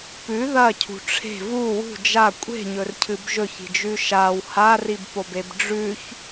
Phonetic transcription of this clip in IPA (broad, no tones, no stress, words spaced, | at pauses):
pʉ ðɐcʰṳ ʈ͡ʂʰe̤ vu wṳ d͡ʒa kʷʼe̤ɲɵrcʰɨb ʒɵçi̤d͡ʒʉ ʃaw haribpobeb ɖ͡ʐʉç